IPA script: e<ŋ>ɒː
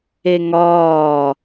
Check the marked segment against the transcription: correct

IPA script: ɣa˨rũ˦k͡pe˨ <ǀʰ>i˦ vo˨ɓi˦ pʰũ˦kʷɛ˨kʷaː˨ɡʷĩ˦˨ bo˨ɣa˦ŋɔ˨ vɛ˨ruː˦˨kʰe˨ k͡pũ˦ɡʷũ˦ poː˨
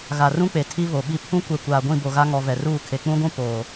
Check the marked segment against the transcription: incorrect: tʰ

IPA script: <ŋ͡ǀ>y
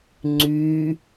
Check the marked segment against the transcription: correct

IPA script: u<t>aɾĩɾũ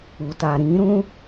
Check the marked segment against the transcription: correct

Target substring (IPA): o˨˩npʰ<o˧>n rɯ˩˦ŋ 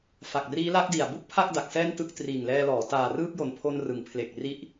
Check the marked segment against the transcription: correct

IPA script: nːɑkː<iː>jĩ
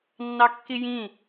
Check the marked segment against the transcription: incorrect: i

